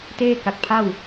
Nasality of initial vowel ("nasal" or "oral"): oral